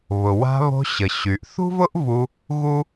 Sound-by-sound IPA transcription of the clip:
β ʊ˩ w a̤˧ β o̤˧ ɕ ə˩ ɕ y˩ ʔ θ ṳ˥ v ʊ˥ ʔ v u˧ | ɣ u˥

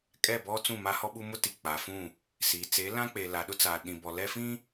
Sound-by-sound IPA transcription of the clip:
kʼ ɛ˦˨ b ɔ˦ t͡s ũ˦˨ m a˦ h ɔ˦ ɓ u˦ m ʊ˦ t i˨ k͡p a˨ f ũ˦˨ | s iː˨ t͡s e˨˦ l ã˦ k͡p eː˨ l a˨ ɗ ʊ˦ t͡s aː˨ ɗ ĩ˨ b ɔ˨ l ɛ˦ f ĩ˦

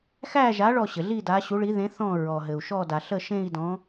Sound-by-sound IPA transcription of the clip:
x æ˦˨ ʒ a˨˦ ɭ ɔ˦˨ ɕ ɘ˩ ɮ i˦˨ d a˨˦ ɕ u˨˦ ɭ i˨˦ ð ẽ˨˦ θ ɔ̃˦˨ ɹ ɔ˩ ɦ ɘ˩ u̯ ʃ ɔ˦˨ d a˩ ɬ ə˦˨ ʃ ẽ˦˨ i̯ d ɔ̃˨˦

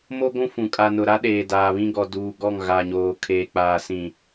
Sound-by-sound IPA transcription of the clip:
m o˦ ɡʷ ũ˦ f ũ˨ kʼ a˨ n ʊ˨ ɾ a˦ ɗ eː˨ d aː˨ β ĩ˦ ɡ ɔ˨ d uː˨ ɡ ɔ˦˨ ŋ ɣ a˨ ɲ oː˨ kʰ eː˨ k͡p aː˨ s ĩ˨

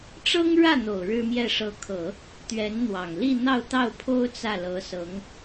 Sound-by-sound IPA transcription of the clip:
ʈ͡ʂ ɤ˥ ŋ ɻ ä˥˩ n̪ o˨˩ ʊ̯ ɻ ɻ̩˥ m j ɛ˥˩ ʂ ɤ˧˥ kʰ ɤ˨˩˦ | t̪ ɥ ɛ˧˥ n n̪ w ɑ˨˩ ŋ l i˥˧ n̪ ɑ˥˧ ʊ̯ t̪ ɑ˥˩ ʊ̯ pʰ o˥ ʊ̯ t͡s ä˥˩ l ɤ˧˥ s ɤ˧˥ ŋ

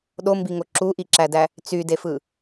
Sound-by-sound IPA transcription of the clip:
ɗ o m b i ŋ o ǁ u ʔ i ǁ æ d æ | t͡s y d e f ɯ

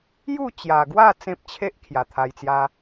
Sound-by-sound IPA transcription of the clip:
j u˥˧ t͡ɕ j a˨˩ ɡ w a˥˧ t͡s ẽ˦ p̚ t͡ɕʰ e˦ ʔ kʰ j a˨˩ t̪ʰ a˧ j t͡s j a˧

